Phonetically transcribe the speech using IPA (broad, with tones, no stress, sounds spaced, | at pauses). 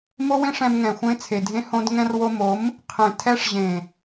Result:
m o˦ w ẽ˦ ʂ ɛ̃˧ m ŋ ɛ̃˨ xʷ ẽ˧ t͡sʰ e˨ dʱ ẽ˧ h õ˧ d ŋ ɛ̃˧ r w o˧ m o˨˦ m | qʰ ẽ˨ tʰ ɛ˧ ʂ ʑ ẽ˨